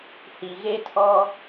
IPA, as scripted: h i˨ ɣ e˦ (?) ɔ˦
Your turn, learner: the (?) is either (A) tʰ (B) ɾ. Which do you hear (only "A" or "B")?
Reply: A